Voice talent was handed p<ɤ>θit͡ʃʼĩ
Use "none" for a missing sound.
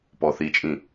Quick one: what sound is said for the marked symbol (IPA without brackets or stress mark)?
ɔ